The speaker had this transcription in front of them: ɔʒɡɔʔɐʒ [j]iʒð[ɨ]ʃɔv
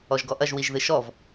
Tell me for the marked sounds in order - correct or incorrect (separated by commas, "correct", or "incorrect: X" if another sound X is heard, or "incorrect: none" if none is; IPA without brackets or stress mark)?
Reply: incorrect: w, correct